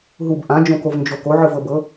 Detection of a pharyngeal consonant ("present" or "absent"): present